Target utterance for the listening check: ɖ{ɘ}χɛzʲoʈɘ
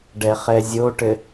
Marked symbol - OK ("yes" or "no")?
no